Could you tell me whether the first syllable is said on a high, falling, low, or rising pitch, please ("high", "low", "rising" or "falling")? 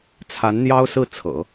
rising